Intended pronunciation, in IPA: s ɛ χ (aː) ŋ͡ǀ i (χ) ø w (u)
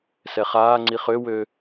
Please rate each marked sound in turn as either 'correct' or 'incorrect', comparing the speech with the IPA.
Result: correct, correct, incorrect

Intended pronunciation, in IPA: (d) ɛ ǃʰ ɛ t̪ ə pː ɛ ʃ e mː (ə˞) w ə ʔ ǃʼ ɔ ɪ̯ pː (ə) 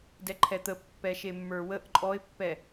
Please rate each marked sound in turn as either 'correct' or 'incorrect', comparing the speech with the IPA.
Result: correct, correct, incorrect

